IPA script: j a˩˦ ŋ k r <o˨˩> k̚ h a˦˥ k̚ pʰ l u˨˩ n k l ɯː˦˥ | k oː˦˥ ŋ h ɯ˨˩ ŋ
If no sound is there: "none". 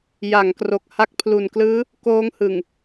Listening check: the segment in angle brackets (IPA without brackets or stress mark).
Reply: o˨˩